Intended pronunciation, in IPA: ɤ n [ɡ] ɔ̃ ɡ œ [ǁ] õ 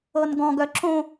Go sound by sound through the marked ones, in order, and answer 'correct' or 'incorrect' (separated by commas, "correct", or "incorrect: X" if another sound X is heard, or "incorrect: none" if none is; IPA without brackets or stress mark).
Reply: correct, correct